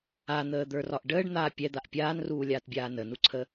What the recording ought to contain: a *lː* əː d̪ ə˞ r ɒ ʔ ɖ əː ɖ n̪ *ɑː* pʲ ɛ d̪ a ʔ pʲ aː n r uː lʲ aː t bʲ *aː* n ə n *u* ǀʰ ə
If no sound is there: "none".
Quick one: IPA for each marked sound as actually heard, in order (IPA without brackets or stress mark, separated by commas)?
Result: n̪, aː, aː, u